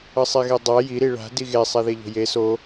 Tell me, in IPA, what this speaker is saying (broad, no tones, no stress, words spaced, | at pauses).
ʌsˤeɣedˤa ji ɾiɭa̤ diɣe sˤɛðeʎo̤je so